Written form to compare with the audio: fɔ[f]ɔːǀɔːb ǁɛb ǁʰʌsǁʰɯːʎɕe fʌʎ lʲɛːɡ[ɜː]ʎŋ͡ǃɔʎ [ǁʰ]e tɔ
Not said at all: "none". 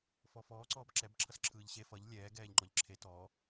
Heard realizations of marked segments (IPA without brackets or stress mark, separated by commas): f, ɛː, ǁʰ